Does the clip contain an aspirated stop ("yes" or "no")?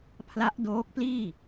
yes